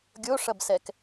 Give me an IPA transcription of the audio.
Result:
ɡʲoʂɐbsɛk

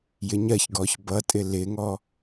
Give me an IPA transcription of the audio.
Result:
jɪɲɜçɡɔç bʌtʼɪ lɪŋɔ

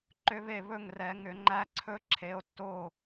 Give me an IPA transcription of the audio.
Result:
ǃʏ˦˥βe˥˨ βɵ˥˨ŋrɛ˨˩˦ ŋʏ˨˩˦ŋ͡ǃæ˦˥ǀʰɵ˦˥ ǁʰe˨˥o̯tːo˥˨

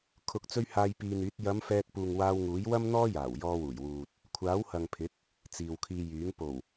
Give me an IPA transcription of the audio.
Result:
kʰʊ˨k̚t͡sɵ˧ɥ haː˧jpiː˧n̪yː˨˥t̚ jɐ˨˧m fɛː˧t̚puː˨ŋwaː˧w ŋuː˨˥jwɐ˥mn̪ɔː˥jaː˨˩w jɔː˧wuː˨˩jwuː˨t̚ | kʷʰaː˨˥whɐ˨ŋpʰɪ˨˥k̚ | t͡siː˨wkʰiː˧jyː˨˥ŋ po˨˩w

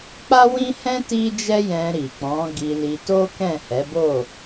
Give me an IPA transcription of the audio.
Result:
k͡pa˦wĩ˦hɛ̃˦ ti˦d͡ʒɛ˦jɛ̃˧ ɾi˨ k͡pɔ̃˨˦ɡi˧li˧to˦ kɛ̃˦˨hɛ˨˦bo˦˨

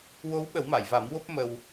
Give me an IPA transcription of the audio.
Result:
wo˧˥wɓə˨˩˦wma˨˩˨jva˨˩˦m wo˦˥p̚ mə˧w

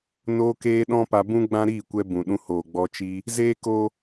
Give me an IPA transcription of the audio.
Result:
noː˧keː˧ ɗɔ̃˦ pa˧bũ˦ ɡ͡bã˦ɾiː˦˨kʷɛ˧bũ˨ ɗũ˧hoː˨ɡ͡bɔ˧ t͡ʃiː˧ | zeː˦koː˦

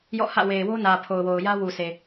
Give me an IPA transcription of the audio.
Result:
jɔ̰˦˨hä̰˦˨ we˨ɪ̯wo˦nä˨ pʰo˨ʊ̯wo˨ʊ̯ jä˦wu˨sʰe˨

